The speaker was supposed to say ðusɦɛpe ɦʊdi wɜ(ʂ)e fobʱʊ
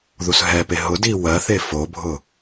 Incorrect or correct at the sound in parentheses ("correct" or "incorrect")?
incorrect